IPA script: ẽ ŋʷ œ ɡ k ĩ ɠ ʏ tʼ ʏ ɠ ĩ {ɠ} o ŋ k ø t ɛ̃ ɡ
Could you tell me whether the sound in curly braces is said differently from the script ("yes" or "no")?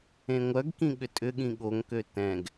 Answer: no